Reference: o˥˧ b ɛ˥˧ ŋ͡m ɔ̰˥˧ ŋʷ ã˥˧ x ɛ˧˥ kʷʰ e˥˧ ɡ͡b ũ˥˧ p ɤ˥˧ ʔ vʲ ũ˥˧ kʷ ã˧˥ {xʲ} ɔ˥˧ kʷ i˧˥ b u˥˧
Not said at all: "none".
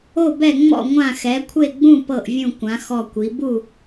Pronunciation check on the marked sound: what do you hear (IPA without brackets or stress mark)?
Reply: x